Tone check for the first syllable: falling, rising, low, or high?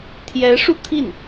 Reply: rising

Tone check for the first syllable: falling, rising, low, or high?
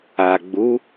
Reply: low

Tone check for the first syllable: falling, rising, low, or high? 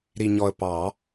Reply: low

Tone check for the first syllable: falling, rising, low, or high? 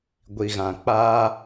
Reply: low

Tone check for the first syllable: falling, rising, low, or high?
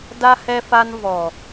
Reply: high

